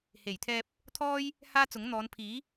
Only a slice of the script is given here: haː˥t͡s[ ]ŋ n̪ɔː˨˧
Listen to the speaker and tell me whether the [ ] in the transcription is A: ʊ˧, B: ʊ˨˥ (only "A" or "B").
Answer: B